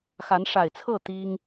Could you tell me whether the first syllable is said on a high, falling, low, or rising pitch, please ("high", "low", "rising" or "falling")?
rising